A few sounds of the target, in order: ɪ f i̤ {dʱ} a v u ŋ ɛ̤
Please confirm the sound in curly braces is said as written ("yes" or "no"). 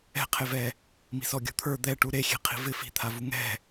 no